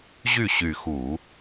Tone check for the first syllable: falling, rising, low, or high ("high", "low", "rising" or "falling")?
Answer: falling